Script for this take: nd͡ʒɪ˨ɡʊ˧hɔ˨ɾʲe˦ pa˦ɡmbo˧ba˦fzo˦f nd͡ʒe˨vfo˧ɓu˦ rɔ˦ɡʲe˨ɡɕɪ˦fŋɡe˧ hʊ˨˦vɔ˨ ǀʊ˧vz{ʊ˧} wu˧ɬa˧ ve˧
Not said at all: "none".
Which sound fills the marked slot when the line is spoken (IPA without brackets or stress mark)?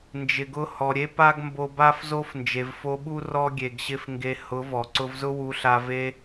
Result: ʊ˦